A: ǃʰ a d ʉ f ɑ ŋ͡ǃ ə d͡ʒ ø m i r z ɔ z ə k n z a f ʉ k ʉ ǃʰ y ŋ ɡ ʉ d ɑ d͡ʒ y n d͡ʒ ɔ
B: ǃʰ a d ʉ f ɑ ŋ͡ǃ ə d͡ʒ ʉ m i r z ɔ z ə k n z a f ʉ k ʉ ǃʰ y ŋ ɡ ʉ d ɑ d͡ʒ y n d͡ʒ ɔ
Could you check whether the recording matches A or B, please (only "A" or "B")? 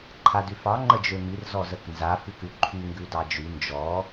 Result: A